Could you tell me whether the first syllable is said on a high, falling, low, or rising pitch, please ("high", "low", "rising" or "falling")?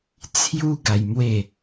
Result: high